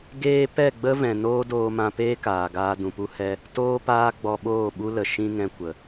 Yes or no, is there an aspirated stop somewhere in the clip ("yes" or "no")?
no